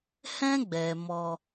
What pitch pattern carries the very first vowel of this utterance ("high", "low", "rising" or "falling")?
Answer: high